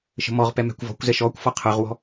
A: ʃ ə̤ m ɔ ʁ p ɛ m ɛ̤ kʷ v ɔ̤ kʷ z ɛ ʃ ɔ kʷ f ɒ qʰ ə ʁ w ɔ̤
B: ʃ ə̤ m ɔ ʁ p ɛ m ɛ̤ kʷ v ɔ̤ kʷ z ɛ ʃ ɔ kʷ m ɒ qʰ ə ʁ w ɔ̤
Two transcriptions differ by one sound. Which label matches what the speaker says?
A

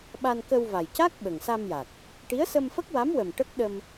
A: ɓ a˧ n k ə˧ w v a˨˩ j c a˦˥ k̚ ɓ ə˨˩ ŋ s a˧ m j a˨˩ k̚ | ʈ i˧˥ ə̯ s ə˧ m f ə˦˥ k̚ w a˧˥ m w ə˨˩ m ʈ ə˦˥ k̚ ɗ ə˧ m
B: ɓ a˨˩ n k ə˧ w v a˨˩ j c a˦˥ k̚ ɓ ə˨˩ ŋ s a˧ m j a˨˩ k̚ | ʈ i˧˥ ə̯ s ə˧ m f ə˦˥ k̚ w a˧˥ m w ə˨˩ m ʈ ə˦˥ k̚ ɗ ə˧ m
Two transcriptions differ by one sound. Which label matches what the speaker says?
A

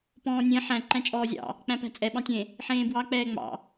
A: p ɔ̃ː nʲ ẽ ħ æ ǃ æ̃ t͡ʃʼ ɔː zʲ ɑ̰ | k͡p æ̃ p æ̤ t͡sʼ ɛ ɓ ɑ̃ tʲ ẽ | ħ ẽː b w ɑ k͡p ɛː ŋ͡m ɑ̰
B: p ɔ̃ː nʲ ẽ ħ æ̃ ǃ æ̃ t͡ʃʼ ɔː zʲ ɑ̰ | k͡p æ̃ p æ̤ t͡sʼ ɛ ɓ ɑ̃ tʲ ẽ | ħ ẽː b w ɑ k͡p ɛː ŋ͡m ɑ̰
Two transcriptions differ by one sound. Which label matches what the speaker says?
B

